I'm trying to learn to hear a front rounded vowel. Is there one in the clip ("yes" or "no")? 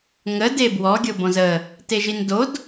no